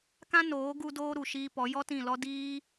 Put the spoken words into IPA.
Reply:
k ã˦ n oː˨˦ ɡ u˧ d oː˧ ɾ u˨ ʃ iː˧ p ɔ˨˦ j ɔ˦ t ĩ˦˨ l ɔ˦ d iː˦

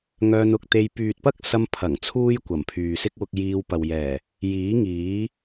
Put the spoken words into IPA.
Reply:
ŋ œː˧ n ʊ˧ k̚ t̪ e˧ j p yː˨ t̚ p ɐ˥ k̚ s ɐ˧ m pʰ ɐ˨˩ ŋ t͡sʰ uː˥ j kʷ ɐ˨˩ m pʰ yː˨ s ɪ˥ k̚ w ʊ˧ k̚ j iː˧ w p ɐ˨ w j ɛː˨˩ | j iː˨˥ ŋ iː˨˥

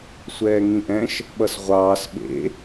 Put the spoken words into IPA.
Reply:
sʷ ɛː ŋ ĩ ʔ ɛ̃ ʃ | ɓ ʌ s ʁʷ ɑː s ɓ ḛ

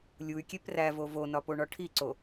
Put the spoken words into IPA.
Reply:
lʲ u y̯ kʲ e p r æ v o v o n ɒ p o ɳ ɒ ʈʰ i ǀ o

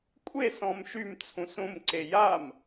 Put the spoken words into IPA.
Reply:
kʷʼ e s ɔ̃ m ʃ y m t͡sʰ ũ s ũ m ǀ e j a m

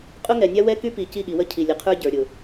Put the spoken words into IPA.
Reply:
qʼ ʊ˦ ŋ ɛ˨ nʲ a˦ w ɛ˦ k y˦ p i˨ c i˦˨ ɠ i˨ w ə˦ cʰ i˨ lʲ ə˨ qʰ ə˞˦ ɟ ə˞˨ ɾʲ ʊ˨

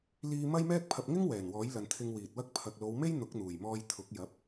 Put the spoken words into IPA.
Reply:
l iː˧ m ɐ˥ j m ɛː˥ k̚ pʰ ɐ˧ p̚ ŋ ɪ˥ ŋ w ɛː˨˩ n w ɔː˨˥ j l ɐ˨ n t̪ʰ ɪ˧ ŋ w iː˨ t̚ w ɐ˥ k̚ pʰ ɐ˨ k̚ l o˨˧ w m e˥ j n̪ ʊ˨˥ k̚ n̪ uː˨˩ j m ɔː˧ j t̪ʰ ʊ˨˥ k̚ j ɐ˨˥ p̚

